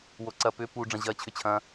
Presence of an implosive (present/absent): absent